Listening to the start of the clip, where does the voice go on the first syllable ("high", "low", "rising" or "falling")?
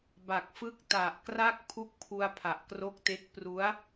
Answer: low